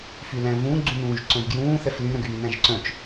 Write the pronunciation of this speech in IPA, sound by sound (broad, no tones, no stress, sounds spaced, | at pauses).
f y l æ̃ v ũ ɡ͡ǀ ũ n ũː ʒ ǀ œ̃ v ɡ j ũː θ ɛ f l y ɾ œ̃ ɡ yː n æ̃ ʒ ǀ œ̃ t͡ʃ